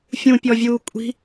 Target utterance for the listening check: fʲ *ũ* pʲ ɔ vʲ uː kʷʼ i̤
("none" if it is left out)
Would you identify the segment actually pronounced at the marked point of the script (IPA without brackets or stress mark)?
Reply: ũ